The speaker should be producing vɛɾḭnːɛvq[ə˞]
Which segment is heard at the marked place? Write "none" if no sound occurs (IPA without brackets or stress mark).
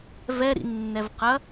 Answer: ɐ